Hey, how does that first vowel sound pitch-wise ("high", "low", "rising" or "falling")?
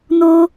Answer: high